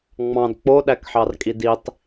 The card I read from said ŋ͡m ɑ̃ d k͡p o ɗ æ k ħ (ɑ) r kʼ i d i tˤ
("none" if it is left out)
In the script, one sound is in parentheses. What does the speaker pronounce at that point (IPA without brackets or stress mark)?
ɑ